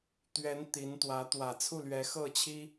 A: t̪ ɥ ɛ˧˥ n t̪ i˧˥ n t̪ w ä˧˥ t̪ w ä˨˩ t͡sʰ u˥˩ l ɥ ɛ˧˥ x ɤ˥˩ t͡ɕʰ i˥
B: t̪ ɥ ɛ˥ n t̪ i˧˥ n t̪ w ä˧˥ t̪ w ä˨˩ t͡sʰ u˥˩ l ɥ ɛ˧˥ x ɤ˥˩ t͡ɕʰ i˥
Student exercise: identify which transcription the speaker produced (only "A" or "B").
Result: A